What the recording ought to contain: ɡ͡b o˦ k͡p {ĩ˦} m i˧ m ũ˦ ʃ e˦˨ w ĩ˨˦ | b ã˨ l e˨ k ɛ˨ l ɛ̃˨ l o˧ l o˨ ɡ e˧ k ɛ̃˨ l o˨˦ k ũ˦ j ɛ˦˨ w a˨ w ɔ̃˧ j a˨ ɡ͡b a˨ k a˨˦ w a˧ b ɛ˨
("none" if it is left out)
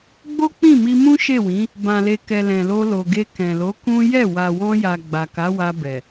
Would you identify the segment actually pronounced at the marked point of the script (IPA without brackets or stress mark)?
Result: ĩ˦˨